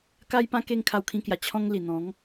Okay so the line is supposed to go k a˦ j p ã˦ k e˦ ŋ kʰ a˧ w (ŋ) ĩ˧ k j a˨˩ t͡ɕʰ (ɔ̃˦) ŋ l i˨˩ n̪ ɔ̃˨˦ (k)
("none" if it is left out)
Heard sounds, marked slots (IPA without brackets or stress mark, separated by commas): kʰ, ɔ̃˦, ŋ